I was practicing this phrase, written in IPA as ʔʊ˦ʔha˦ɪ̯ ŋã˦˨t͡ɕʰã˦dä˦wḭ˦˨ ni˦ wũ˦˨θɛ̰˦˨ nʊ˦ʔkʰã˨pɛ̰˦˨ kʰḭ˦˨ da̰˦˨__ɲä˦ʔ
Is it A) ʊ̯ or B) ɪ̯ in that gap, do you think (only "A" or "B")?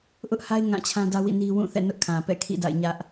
B